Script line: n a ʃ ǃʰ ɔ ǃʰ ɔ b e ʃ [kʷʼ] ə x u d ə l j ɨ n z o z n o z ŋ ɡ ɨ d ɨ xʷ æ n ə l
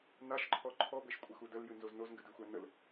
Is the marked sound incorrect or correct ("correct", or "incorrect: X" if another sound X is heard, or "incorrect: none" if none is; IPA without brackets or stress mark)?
correct